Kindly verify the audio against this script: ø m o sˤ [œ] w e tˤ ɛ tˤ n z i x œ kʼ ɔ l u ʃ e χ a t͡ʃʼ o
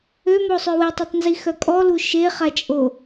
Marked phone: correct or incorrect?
incorrect